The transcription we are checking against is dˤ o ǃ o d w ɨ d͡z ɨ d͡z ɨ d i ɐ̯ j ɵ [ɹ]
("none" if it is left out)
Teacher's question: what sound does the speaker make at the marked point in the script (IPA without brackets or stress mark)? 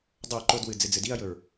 ɹ